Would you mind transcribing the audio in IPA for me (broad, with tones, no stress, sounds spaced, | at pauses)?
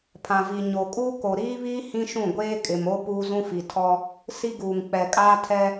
pʰ ã˨ v i˨ ɲ o˨ kʼ uː˦ k o˨ ɾ iː˦ β iː˦ h ĩ˦ ʃ ũ˦˨ ɡʷ eː˦ kʼ ɪ˨ m o˦ p uː˦ z ũ˦ f i˨ tʰ ɔ˦ | s i˦ ɡ uː˨ ŋ k͡p ɛ˨ kʼ aː˦ tʰ ɛ˦